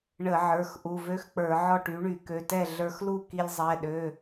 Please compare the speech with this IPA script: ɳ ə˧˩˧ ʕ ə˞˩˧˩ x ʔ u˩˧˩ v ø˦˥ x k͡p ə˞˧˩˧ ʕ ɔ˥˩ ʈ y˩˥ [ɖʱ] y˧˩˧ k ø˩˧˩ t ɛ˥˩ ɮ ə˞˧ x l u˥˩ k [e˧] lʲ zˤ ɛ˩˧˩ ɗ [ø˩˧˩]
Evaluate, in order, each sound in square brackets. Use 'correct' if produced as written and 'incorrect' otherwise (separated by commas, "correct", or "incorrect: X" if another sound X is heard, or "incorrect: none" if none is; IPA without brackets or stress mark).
incorrect: ɳ, incorrect: i˧, correct